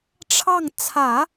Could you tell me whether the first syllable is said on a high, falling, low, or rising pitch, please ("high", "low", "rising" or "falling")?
falling